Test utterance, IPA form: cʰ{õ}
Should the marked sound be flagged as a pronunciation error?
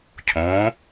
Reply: yes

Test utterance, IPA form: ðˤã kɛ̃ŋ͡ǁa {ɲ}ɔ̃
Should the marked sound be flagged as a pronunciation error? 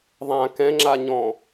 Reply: no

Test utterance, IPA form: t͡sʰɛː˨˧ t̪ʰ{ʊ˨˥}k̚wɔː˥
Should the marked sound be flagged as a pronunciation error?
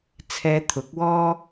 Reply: no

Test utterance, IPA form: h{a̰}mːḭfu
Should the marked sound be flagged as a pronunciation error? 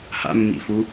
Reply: no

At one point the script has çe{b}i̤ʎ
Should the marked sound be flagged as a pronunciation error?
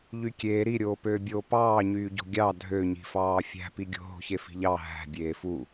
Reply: yes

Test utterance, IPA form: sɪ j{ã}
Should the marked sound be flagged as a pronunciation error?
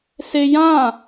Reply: no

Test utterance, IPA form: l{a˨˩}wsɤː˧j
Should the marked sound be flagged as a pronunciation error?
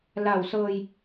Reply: no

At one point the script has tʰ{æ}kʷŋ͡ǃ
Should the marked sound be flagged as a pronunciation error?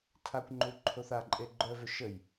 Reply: yes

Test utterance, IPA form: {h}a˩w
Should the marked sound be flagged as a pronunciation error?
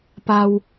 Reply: yes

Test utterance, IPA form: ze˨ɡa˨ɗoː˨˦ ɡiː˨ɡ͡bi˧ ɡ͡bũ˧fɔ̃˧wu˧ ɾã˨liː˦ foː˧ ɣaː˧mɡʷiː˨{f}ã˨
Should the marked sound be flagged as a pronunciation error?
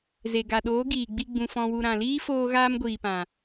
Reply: yes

